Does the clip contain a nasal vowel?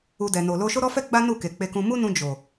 yes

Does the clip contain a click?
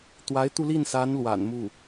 no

